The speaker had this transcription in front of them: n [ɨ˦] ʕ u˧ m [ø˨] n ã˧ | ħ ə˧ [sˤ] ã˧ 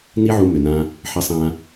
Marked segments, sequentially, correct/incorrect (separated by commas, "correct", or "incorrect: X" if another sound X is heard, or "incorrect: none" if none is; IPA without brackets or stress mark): incorrect: i˦, correct, correct